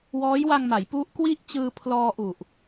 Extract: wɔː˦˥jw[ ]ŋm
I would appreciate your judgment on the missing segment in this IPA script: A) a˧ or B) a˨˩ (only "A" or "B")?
A